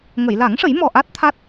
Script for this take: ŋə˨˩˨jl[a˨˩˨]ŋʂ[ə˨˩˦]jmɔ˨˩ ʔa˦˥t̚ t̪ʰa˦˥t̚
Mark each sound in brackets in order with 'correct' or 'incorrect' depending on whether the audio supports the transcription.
incorrect, correct

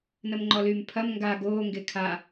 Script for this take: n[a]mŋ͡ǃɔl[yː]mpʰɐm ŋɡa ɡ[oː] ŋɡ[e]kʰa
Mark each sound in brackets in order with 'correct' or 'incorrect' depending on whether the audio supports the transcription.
incorrect, correct, correct, correct

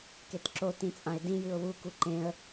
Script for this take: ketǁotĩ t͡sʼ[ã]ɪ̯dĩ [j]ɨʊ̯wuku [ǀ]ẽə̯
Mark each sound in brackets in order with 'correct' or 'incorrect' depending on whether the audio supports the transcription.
correct, correct, incorrect

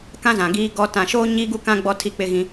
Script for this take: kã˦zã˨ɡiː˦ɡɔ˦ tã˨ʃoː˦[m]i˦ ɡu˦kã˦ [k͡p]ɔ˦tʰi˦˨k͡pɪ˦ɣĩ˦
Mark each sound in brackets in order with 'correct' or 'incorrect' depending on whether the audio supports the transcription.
incorrect, incorrect

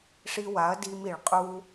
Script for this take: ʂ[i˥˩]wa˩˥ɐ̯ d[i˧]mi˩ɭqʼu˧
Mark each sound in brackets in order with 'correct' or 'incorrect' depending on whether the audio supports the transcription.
incorrect, correct

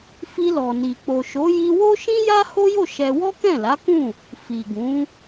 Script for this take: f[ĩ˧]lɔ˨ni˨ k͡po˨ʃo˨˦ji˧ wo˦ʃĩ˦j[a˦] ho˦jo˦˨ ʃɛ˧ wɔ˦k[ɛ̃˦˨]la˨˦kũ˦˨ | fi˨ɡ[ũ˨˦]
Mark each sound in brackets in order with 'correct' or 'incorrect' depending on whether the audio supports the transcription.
incorrect, correct, correct, correct

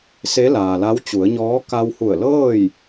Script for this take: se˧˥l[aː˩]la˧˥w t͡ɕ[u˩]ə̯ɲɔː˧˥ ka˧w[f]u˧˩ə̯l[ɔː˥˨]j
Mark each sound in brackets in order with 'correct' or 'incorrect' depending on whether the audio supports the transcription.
correct, incorrect, incorrect, incorrect

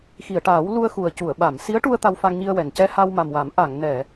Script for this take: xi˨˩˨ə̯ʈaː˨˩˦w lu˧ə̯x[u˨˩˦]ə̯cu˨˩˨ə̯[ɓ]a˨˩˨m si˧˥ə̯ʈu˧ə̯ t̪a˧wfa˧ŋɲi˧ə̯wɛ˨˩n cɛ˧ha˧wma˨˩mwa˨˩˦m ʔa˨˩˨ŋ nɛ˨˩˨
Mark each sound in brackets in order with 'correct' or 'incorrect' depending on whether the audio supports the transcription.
incorrect, correct

